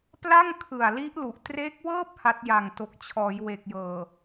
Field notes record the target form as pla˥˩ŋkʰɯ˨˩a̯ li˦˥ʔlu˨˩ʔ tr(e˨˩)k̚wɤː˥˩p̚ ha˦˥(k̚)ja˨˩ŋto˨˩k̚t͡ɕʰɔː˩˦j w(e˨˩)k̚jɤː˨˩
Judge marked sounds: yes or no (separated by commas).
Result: no, no, yes